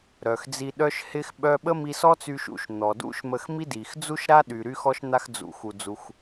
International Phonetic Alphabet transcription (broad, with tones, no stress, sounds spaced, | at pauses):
ɾ œ˩ x d͡z i˧ ɗ œ˥ ʃ h ɪ˥ x ɓ œ˥ ɓ ə˥ m i˧ s ɔ˥ t͡s y˧ ʃ ṵ˧ ʃ n̪ ɔ˩ d ṵ˥ ʃ m ə˧ x m i˥ d i˩ x d͡z u˥ ʃ ɾ a˥ ɗ y˩ ɾ y˥ x ɔ˥ ʃ n̪ a˧ x d͡z ṵ˩ x u˩ d͡z u˩ x